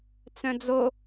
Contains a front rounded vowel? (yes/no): yes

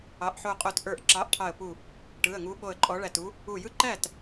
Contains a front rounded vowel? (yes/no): no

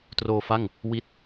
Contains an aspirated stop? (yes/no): no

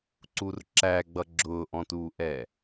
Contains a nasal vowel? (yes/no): yes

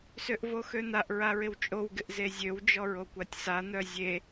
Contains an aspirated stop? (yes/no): no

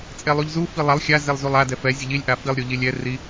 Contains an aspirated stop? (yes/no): no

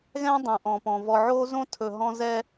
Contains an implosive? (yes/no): no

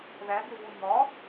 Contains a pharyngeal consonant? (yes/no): no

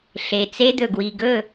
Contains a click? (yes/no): no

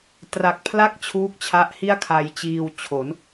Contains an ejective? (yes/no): no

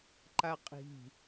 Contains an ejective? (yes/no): yes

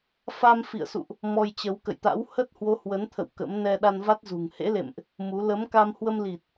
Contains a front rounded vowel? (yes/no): no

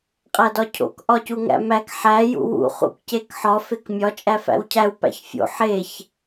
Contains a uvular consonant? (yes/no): yes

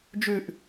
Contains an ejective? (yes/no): no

